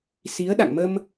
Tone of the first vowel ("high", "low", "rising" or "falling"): rising